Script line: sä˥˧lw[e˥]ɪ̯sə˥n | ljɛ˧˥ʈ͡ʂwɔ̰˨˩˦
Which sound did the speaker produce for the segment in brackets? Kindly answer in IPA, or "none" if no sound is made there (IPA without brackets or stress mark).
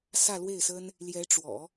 e˥˩